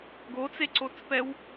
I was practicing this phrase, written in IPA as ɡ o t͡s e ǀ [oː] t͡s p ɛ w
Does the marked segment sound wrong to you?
yes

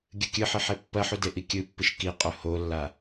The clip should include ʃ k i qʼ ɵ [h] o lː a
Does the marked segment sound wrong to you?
no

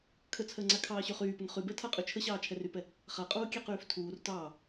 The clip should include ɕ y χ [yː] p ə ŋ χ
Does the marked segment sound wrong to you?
no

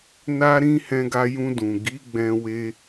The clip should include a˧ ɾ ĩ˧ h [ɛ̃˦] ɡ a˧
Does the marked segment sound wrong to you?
yes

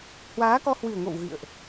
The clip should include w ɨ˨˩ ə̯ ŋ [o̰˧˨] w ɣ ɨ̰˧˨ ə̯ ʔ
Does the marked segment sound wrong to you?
no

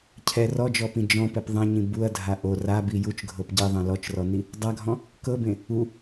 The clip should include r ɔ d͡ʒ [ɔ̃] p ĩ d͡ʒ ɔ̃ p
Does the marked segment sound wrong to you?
yes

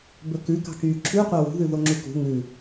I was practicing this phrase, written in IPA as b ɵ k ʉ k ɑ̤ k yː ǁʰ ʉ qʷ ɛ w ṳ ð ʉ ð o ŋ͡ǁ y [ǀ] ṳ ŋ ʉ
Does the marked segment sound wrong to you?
yes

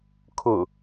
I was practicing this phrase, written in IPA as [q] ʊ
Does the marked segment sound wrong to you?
yes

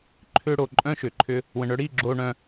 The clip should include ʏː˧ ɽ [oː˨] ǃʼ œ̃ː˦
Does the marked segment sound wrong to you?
no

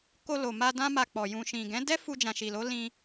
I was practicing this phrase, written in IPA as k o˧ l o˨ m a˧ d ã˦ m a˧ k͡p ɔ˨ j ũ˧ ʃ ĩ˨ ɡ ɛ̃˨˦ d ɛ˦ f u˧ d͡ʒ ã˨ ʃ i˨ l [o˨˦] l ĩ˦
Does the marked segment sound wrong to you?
no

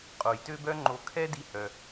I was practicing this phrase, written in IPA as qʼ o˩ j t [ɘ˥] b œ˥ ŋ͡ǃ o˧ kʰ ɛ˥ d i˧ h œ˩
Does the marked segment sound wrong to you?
yes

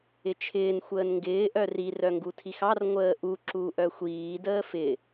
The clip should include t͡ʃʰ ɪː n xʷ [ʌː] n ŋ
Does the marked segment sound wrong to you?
yes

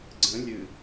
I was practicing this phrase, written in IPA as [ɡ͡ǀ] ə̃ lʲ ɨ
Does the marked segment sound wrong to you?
no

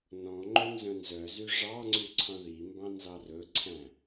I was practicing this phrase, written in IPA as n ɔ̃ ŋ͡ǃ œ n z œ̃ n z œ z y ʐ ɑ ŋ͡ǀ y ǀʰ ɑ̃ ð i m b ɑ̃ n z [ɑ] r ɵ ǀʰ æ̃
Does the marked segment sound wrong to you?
no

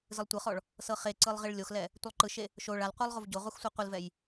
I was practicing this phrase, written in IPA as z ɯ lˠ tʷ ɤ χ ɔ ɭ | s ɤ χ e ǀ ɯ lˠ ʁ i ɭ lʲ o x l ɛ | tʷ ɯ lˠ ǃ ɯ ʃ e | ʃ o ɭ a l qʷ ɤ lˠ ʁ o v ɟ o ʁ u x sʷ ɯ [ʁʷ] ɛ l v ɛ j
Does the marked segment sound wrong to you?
yes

